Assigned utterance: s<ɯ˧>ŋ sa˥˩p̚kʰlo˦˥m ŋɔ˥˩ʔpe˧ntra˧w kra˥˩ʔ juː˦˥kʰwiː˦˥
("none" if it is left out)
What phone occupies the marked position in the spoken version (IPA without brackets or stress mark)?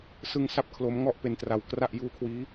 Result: ɯ˧